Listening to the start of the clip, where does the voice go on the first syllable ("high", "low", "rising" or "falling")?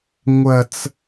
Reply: high